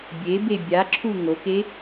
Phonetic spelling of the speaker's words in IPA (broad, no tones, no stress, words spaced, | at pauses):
bʲebe bʲaǁʰu ŋoke